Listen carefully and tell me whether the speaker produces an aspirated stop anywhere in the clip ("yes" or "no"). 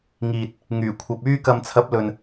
yes